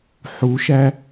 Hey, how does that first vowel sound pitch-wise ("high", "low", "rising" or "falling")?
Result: rising